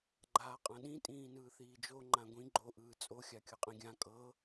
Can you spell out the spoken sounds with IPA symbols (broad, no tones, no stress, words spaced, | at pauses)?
ɡ͡ǃaːqʼãɗĩ tʼĩːnɯːθiːd͡ʒo ŋ͡ǃãɡʷĩ ɡ͡ǃo ʔɯːt͡sʼo xʲakʲɤqʼĩɡʲã kʼɤ